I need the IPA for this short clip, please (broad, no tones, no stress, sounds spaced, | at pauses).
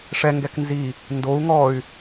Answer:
ʂ ɛ ŋ ɡ ɛ k n z i | n d o u̯ ŋ ɔ y̯